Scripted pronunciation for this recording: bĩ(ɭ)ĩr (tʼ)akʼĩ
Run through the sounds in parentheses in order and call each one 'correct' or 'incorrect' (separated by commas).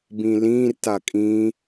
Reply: incorrect, incorrect